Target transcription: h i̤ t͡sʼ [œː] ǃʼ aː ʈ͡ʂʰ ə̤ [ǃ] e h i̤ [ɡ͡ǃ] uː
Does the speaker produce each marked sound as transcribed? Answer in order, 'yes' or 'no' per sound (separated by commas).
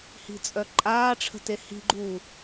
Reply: no, no, yes